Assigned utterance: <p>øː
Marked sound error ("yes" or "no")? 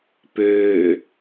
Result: no